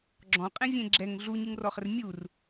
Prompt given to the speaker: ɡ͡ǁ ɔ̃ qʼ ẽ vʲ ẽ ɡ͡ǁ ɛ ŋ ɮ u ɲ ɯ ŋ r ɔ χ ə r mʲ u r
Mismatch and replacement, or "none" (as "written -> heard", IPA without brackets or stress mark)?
none